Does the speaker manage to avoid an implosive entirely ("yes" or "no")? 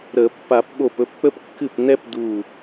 no